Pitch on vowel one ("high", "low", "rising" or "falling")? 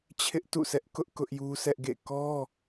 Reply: high